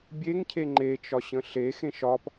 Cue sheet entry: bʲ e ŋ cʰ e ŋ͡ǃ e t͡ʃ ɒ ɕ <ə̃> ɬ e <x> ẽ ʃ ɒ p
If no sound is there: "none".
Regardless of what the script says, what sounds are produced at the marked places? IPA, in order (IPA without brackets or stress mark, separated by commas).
ə̃, x